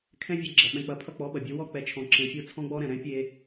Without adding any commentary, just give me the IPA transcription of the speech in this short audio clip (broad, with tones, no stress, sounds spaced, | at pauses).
kʰ ɛ̃˦ vʲ ɐ˧ ɡ͡ǁ ɐ˨ ɓ ɛ̃˧ k͡p ɐ˧ pʰ ʌ˦ k͡p ɔ˨˦ ɓ ɐ˨ bʲ o˧ w ɔ˧ k͡p ɛ˨ t͡ʃʰ ɔ̃˨ ǁ ẽ˨ pʲ o˧ t͡sʰ ɔ̃˧ ɡ͡b ɔ˧ ɾ ɛ̃˨ ɾ ɛ̃˨˦ pʲ e˧